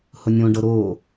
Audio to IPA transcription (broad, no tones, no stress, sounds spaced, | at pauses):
h ʊ nʲ õ ɖ ɤ ɾ o